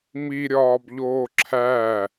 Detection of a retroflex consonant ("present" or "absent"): absent